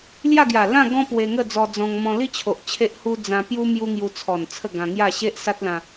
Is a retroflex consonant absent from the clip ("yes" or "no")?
yes